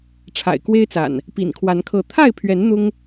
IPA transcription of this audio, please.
ʈ͡ʂʰ a̰˨˩ ɪ̯ k w e˦ ɪ̯ t͡s a̰˨˩ n | p ḭ˨˩ n kʰ w a˨˦ n kʰ ɤ˨˦ t̪ʰ a˥˨ ɪ̯ pʰ ɥ ɛ˨˦ n n̪ ʊ˦ ŋ

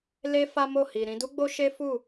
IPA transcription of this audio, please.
l e˦ f a˦ m o˦˨ h i˨ ɾ ĩ˧ d u˦ ɡ͡b o˦ ʃ e˦ f u˦˨

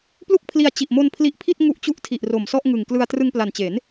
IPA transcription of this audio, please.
p l u˥˩ k̚ pʰ l i˧ a̯ t͡ɕ i˨˩ ʔ m o˧ n pʰ l i˦˥ ʔ pʰ i˥˩ t̚ ŋ u˦˥ ʔ t͡ɕ u˦˥ ʔ tʰ i˨˩ ʔ r o˨˩ m s ɔ˥˩ ʔ ŋ ɯ˨˩ ŋ k l ɯ˧ a̯ t r ɯ˧ ŋ p l a˨˩ n t͡ɕ e˩˦ n

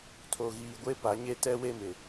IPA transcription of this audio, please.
tʰ o˨ ɣ iː˨ ɡʷ e˦ p a˨˦ ɲ e˦ t ɛ˦ w e˦ m ɪ˨

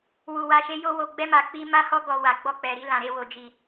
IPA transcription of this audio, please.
w u˧ w a˧ ʃ e˦ j o˦ w o˧ ɡ͡b ɛ˦ m a˧ k͡p i˦ m a˦ h ɔ˦ ɡ ɔ˧ w a˨ ɡ͡b ɔ˧ k͡p ɛ˨ ɾ i˧ l ã˨ ɾ e˧ w o˨ d͡ʒ i˨

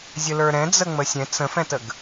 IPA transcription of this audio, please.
zʲ ə l ə˞ ɾ ɛ̃ d͡z ə ŋ͡m ə sʲ ɛ̃ t͡s ə̃ f ɛ̃ t ə ɡ

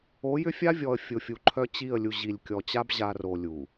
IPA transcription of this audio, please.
o˨˦ j ʏ˦ fʲ a˦ vʲ ɔ˨ ə̯ fʲ ʊ˨ fʲ u˨ ǃʰ œ˦ t͡ɕ i˦˨ ə̯ lʲ u˨ ʑ i˨ lʲ kʲ ɔ˨ t͡ɕ a˦ b ʑ a˨ r o˨ lʲ u˨

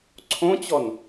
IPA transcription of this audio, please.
ǀʰ õ t͡ɕ ɔ n

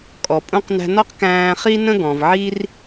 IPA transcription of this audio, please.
kʼ ɔ˩ pʼ ũ˧ q n æ̤˧ n ɒ˥ q k æ̃ː˧ χ i˥ n ə̃˥ ɡ ɔ̃˩ v ʕ i˥ r

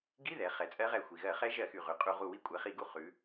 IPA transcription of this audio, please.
ɡ i˧˥˧ ð ɛ˩˧ χ ɛ˩˧ t͡sʼ ɜ˦˥ ʁ ɛ˧˩ xʷ i˩ ɣ ɜ˧˩˧ χ ɛ˦˥ ʒ ɜ˧˩˧ x y˩ ʁ ʉ˩ qʼ u˧˩˧ ʁ u˧˩ w i˦˥ kʷʼ ɛ˩˧ χ i˧˩˧ ɡ u˧˩ χ ʉ˩˧

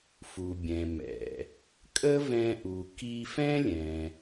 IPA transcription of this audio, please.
f u˩ bʲ ɛ̃˩ m ɛ̰˩ | kʼ ə˥ v ɛ̃˧ ʔ u˩ k i˧ f ɛ̃˥ lʲ ɛ̃˩

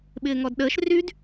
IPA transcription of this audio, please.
ɓ ɪː ŋ ɔ d ɗ əː ʃ r y d

